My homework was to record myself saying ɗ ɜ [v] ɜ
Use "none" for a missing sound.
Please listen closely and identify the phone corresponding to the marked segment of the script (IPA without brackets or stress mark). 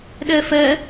f